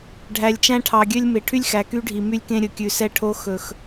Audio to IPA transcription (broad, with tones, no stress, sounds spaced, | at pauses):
ɖʱ æ˨ lʲ t͡ʃ æ̃˦ ʈʰ ɑ˨ ɡʲ ø˦ lʲ m e˨ ʈʰ y˦ lʲ x æ˨ k y˦ ɖʱ i˨ m y˦ lʲ k ẽ˦ ɾʲ ɵ˨ kʲ ʉ˨ s ɛ˦ ʈʰ o˦ x ɵ˨ x